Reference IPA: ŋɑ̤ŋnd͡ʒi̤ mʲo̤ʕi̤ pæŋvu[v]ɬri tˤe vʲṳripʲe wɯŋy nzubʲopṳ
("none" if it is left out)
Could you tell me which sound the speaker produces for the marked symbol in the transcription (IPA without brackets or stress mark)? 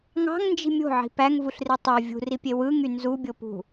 none